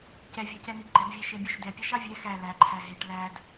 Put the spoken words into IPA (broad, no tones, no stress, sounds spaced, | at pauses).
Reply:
c ɛ vʲ ɑ c ɛ n i ɡ͡ǃ ɛ b vʲ ɛ ʃ e bʲ œ ʃ d ɛ pʲ ɑ ʃ ɑ vʲ ɛ x æ l æ ǃʰ æ ɦ e ʈ l æ d